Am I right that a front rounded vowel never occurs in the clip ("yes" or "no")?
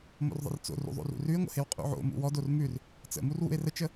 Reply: yes